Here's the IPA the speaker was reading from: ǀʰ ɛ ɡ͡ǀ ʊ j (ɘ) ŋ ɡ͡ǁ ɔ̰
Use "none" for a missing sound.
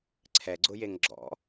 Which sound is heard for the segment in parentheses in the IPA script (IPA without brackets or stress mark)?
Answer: e